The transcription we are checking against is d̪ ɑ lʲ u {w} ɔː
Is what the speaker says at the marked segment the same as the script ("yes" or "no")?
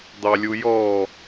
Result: no